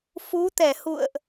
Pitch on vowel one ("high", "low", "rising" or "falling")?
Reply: rising